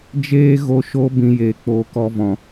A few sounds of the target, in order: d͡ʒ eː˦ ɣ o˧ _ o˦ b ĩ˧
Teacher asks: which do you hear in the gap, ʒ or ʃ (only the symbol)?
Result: ʃ